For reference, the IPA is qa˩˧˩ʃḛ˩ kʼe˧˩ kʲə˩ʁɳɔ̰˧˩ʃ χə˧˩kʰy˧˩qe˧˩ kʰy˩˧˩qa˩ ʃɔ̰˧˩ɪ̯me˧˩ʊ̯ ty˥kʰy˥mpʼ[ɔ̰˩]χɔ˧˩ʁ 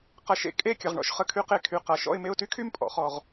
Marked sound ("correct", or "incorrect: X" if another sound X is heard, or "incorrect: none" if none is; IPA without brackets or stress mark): correct